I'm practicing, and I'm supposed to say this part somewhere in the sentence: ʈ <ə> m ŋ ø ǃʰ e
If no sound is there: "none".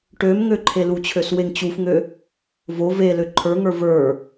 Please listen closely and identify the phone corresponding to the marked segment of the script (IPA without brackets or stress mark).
ø